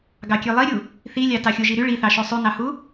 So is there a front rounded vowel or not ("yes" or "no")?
yes